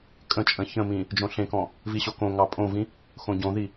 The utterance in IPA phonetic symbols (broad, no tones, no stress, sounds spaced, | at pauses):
kʼ ə̃ t͡ʃʼ ə̃ ç ə̃ m ĩ | d͡ʒ õ ɬ ẽ k ɔ̃ | v i ɕ o k õ ŋ ɑ pʼ õ v ĩ | x õ ɟ õ ð i